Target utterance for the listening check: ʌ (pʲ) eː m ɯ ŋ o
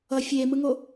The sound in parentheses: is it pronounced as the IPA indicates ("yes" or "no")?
no